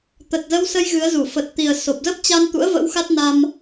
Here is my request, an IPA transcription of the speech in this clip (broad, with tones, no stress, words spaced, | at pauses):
t̪ə˨˩t̚zə˧wsə˧j ɣɨ˨˦ə̯zu˧˩ fə˨˩t̚t̪i˨˩ə̯ so˨˩p̚zə˦˥p̚t͡ɕa˧n t̪ṵ˧˥ə̯və̰˧˥wxa˦˥t̚ na˧m